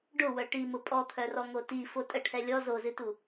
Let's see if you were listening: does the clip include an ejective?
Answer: yes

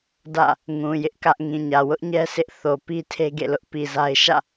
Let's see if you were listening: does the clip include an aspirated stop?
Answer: yes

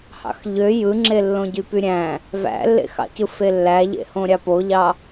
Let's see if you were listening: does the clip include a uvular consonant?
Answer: no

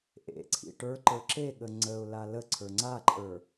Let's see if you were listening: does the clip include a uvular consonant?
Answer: no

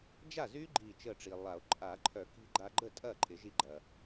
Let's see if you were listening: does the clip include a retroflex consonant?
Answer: yes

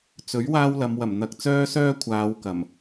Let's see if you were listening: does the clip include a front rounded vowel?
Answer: yes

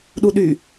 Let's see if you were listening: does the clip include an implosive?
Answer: yes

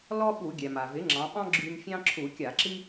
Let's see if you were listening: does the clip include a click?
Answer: yes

